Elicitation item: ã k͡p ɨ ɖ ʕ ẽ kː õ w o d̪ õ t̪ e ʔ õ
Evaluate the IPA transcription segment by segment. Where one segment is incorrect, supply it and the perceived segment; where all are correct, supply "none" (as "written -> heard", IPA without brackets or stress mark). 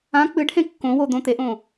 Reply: ʕ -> h